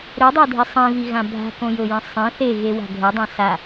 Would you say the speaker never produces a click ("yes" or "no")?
yes